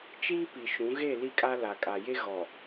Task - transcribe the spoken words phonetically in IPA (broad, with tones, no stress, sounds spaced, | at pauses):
t͡ʃ iː˦ p i˨ ʃ ũ˨˦ ɣ e˦˨ l i˦ kʼ a˦ l a˨ kʼ a˨ j e˦ ɣ ɔ˨